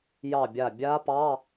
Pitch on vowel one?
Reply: falling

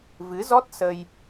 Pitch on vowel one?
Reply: rising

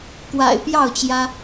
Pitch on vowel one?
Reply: low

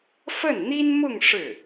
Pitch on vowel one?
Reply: falling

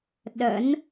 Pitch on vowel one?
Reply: rising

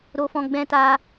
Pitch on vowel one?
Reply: high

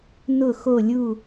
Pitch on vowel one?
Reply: falling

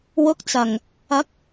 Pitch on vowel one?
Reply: rising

